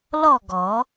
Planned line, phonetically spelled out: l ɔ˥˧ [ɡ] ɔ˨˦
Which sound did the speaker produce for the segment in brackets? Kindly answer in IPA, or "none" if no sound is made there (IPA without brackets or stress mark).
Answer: ɡ